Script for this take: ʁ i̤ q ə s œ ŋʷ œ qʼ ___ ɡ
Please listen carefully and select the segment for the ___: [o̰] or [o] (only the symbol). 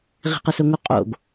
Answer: o̰